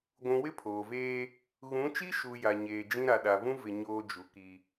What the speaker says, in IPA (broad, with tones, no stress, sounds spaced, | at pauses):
ɡʷ ũ˨ w ɪ˦ pʰ oː˨ v eː˦ | ɣ ũ˨˦ t͡ʃ i˦ ʃ u˨ j a˨ ɲ eː˨ d͡ʒ ĩ˦ ɾ a˨ ɗ a˨ v ũ˦ v ɪ˨ ɲ oː˦ d͡ʒ u˨ k i˦